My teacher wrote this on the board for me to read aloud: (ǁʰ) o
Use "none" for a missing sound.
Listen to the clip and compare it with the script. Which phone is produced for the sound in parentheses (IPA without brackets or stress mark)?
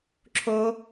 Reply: ǁʰ